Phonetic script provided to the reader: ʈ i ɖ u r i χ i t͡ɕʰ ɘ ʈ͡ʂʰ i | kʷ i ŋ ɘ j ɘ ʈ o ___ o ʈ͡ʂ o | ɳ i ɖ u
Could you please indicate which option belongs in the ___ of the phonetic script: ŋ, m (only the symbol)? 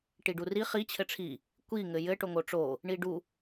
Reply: ŋ